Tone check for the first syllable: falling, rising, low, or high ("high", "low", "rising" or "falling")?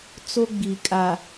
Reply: high